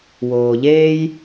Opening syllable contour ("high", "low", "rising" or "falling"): low